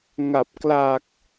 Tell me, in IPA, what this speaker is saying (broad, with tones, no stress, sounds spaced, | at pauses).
ŋ a˨˩ p̚ k l a˨˩ k̚